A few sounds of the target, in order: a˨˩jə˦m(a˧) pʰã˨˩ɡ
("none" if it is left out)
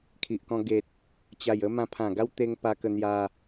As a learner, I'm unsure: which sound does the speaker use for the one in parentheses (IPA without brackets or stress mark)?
ã˧